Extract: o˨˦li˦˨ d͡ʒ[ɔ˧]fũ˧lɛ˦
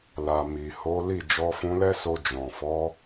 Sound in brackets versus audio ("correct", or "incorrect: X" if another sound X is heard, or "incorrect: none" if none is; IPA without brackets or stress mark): correct